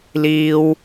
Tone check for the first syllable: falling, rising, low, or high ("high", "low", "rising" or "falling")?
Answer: high